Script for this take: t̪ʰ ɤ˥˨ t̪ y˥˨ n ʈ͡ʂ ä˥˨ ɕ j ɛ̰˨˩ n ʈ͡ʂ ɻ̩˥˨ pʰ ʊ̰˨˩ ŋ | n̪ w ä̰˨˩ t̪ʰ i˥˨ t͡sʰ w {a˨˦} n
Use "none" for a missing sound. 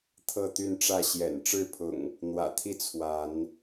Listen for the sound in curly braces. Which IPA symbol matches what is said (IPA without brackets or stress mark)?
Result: a˨˦